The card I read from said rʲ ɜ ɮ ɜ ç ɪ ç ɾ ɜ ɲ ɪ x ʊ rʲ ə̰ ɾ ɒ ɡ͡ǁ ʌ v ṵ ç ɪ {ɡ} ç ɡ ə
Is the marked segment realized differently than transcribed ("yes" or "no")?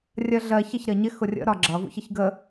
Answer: yes